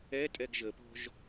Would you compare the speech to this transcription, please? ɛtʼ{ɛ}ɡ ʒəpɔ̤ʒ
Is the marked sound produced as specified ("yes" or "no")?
yes